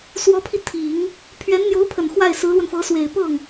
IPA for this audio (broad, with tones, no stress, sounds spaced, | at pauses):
s w ɔ˧˥ pʰ i˧ t̪ʰ i˨˩˦ ŋ | pʰ ɥ ɛ˧˥ n n̪ j o˧˥ ʊ̯ pʰ ə˨˩ n x w a˥˩ ɪ̯ s ɹ̩˧˥ l w ə˧ n f ɤ˧˥ s w e˨˩ ɪ̯ p ɤ˥˩ ŋ